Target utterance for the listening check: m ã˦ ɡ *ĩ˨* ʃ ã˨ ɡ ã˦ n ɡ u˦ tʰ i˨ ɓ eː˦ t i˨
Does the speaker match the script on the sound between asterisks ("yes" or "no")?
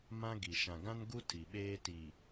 no